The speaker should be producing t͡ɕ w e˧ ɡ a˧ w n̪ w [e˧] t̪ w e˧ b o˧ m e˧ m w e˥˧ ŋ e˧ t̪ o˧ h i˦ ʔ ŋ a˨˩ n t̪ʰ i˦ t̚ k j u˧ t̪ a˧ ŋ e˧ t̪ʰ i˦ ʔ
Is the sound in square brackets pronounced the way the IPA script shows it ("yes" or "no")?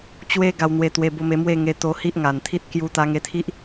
yes